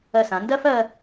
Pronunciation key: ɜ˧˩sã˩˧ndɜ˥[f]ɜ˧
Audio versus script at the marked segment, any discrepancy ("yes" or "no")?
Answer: no